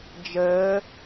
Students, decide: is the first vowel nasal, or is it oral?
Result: oral